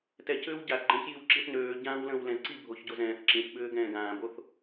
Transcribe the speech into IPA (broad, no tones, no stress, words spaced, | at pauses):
tɛcʏːw ɟaθɡ͡ǃə̃ːçjiw ǁiθnøː ɟãːwlə̃ːwlɛ̃zǀi bʱoçɟozɛ̃ːθ ǁĩθɓʏː ɡɛ̃ːɡãːboθ